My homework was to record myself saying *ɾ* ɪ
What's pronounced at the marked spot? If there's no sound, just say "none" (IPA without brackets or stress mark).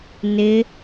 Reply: n